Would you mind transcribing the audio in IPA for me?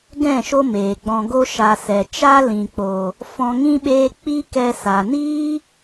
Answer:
ɡ ɛ̃˦˨ ʃ o˦ m eː˨ ɡ͡b ɔ̃˨ ɡ o˧ ʃ a˨ s ɛ˨ t͡ʃ a˦ l ĩ˨ k͡p o˨ | f ɔ̃˧ ŋ ĩ˦ ɓ eː˦ k͡p i˦ k ɛ˧ s a˨ n iː˦

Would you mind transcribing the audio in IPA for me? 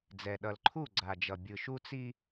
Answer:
d͡z ɛ˨ ɗ ʌ˨ l ǃʰ u˦˨ ɡ͡ǀ a˨ d͡ʒ ʌ˨ bʲ ɯ˨ ʃ u˦ t͡s i˦

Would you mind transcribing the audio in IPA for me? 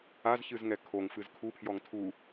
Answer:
a z ç ɨ z ŋ ɛ kʰ o ŋ f ɨ z kʰ u pʰ j ɔ ŋ tʰ u

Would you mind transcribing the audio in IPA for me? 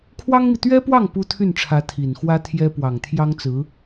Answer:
kʰ w ɑ˥ ŋ m i˨ t̪ ɥ ɛ˥ p w ɑ˥˩ ŋ p u˥ t̪ʰ y˥˩ n ʈ͡ʂʰ ä˧˥ t̪ʰ i˨˩ n x w ä˥ t̪ʰ j ɛ˥ p w ɑ˨˩ ŋ t̪ʰ j ɑ˥ ŋ t͡s ɹ̩˧˥

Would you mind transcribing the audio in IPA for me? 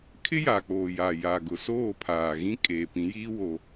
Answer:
kʰ ɪ˦ j a˨ k͡p oː˨ j a˨ j a˨ ɡ ʊ˨ s oː˦˨ pʰ aː˨ ɣ ĩ˦ kʼ eː˨ p ĩ˨˦ j iː˦ w o˦

